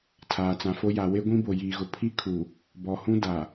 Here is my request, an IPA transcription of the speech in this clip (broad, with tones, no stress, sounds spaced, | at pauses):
tʰ aː˨ t͡s ã˨ f o˦ j a˨ w e˦ ɡʷ ĩ˦ b o˨ j iː˨ ɣ ʊ˨ pʰ i˦ kʰ u˨ | b ɔ˨ h ũ˦ d a˨